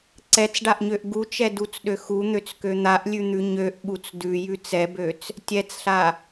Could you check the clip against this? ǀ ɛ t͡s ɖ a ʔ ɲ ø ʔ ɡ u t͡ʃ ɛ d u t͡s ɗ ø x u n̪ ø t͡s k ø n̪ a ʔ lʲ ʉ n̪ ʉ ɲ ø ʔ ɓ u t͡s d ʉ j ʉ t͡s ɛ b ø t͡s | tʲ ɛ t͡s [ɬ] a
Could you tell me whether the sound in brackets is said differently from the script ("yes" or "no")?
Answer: no